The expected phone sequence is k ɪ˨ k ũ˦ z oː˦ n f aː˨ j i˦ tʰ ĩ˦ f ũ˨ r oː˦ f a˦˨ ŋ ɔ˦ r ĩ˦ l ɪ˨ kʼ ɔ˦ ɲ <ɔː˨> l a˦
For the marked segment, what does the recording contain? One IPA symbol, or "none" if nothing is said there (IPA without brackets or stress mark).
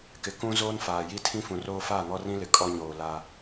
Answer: oː˨